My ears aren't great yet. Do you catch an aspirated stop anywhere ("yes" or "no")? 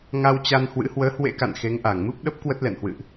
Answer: no